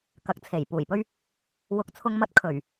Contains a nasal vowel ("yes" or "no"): no